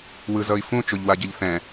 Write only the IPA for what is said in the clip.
w ɯ z ʌ i̯ f ũ t͡ʃ o ʎ w a ɟ ʌ ʎ θ ɛ̃

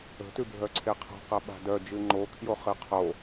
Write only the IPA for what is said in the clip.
ə̤ t ʉ bʱ œ ǀʰ e qʰ a̤ q ɐ ɓ a̤ d œ d͡ʒ ɨ ŋ͡ǃ o kʰ j o χ ɨ qʰ o

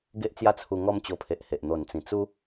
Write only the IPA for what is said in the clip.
ɡ e˦ ʔ t͡s j a˦ t͡sʰ u˧ ŋ ɔ˦ m t͡ɕ o˧ pʰ e˨ ʔ h e˨ ʔ n̪ o˨˩ n t͡s ĩ˨˩ t͡s u˦

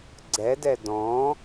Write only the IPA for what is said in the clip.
ɡ͡ǀ ɛ d ɛ d ɔ̃

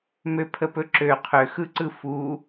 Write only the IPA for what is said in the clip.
m ø pʰ ə p ɵ ǁ ø qʰ ø x ɯ ǀ ɯ f u

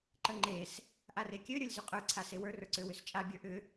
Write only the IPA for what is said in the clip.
ǃ ə ŋ͡ǃ e s | ʔ a r e kʲ ø ɾʲ ə˞ lʲ z y qʼ ə˞ ǀʰ a s e w ə˞ r ə˞ ǀ ø w ʏ s t͡ʃʼ a bʲ ə˞ ʔ ʏ

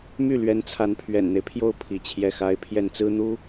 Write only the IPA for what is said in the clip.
m y˥˩ l ɥ ɛ˧˥ n t͡sʰ a˧˥ n pʰ ɥ ɛ̰˨˩ n n̪ e˦ ɪ̯ pʰ j o˥˩ ʊ̯ pʰ i˧˥ t͡ɕʰ j ɛ˥˩ x a˥ ɪ̯ pʰ j ɛ˥˩ n t͡s ɹ̩˥ n̪ u˥

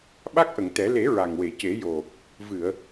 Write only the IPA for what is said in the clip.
ɓ a˦˥ k̚ ʔ ə˨˩˨ ŋ t̪ ɛ˨˩˦ l e˨˩˦ ɹ a˨˩ ŋ w e˨˩˨ c e˨˩˦ j o˨˩ | v ɨ˨˩˨ ə̯

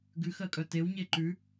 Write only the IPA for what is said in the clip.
ɡ ʉ x ɜ kʼ œ t e w ɲ e ǃ ʉ

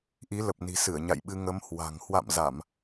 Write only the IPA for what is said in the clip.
ʔ i˨˦ l ə˨˩ p̚ n i̤˨˩ s ɨ˧˩ ə̯ ɲ a̰˧˨ j ɓ ɨ˧ ŋ ə˨˦ m h w a̤˨˩ ŋ h w a̰˧˨ m z a˧˩˨ m

